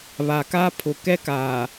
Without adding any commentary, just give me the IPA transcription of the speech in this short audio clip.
β a˨ k a˦ pʰ ʊ˨ k ɛ˦ k aː˨

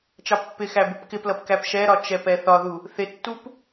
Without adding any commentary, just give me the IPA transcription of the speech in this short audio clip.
t͡ʃ ɑ pː ɪ x æ b u p k ɪ p l ʌ p k æ p ʃ ɛ ɾ ɒ t͡ʃ ɛ p ɛ θ ɒ ð u | θ ɪ tː u p

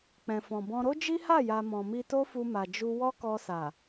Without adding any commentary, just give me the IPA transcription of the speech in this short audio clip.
k͡p ɛ̃˨ f ɔ̃˨ b ɔ̃˧ ɾ o˦ d͡ʒ i˦ h a˦˨ j a˨ m ɔ̃˨ m i˧ t o˦ f u˧ m a˨ d͡ʒ u˧ w ɔ˦ k ɔ˧ s a˨

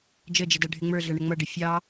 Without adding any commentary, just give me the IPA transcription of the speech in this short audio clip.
d͡ʒ ə d͡ʒ ɪ d ʌ ɖʱ ɪ ŋ͡m ə˞ ɮ ʌ ɳ ə ŋ͡m ʌ ɖ ɪ fʲ ɑ

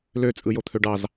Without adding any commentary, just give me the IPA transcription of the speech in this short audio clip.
l ø t͡sʼ ɯ j o t̪ʰ ø ɖ ɑ z

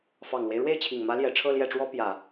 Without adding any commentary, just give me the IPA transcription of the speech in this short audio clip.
f ɑ˨˩ ŋ l w e˦ ɪ̯ ɻ w e˥˩ ɪ̯ t͡ɕʰ i˨˩ ŋ m ä˧˥ l j ɛ˨˩ ʈ͡ʂʰ ɤ˥˧ l j ɛ˥˩ ʈ͡ʂ w ɔ˥ p j ä˨˩˦

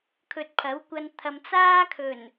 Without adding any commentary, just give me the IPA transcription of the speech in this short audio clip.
kʰ ɵ˨ t̚ pʰ ɐ˨˥ w kʷ ɐ˧ n t̪ʰ ɐ˨ m t͡s aː˥ kʰ ɵ˨˩ n

